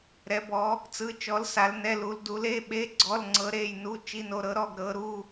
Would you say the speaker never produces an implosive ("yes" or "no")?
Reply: no